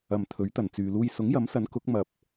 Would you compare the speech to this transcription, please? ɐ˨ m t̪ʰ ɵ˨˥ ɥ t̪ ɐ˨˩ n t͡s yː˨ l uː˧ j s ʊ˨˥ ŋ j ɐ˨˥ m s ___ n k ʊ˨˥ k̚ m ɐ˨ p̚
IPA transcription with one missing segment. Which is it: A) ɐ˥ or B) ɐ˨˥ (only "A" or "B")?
B